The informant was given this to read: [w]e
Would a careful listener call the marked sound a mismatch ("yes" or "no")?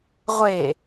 yes